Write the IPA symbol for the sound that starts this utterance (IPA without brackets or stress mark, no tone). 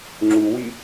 ŋ͡ǁ